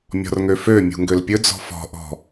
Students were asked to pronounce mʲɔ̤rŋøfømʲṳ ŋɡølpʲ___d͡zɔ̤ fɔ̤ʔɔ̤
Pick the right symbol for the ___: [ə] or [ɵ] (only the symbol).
ɵ